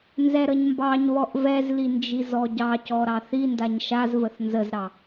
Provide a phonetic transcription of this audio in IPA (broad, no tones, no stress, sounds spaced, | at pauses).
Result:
n z ɛ ɾ ə ɲ m b ɑ ɲ β ɔ ʔ v ɛ z l i n d͡ʒ i z ɔ ɟ ɑ c ɔ ɾ ɑ θ i n d a ɲ ʃ a z v ə θ n z ə z ɾ ɑ